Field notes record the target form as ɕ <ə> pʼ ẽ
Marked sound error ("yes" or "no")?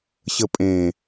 no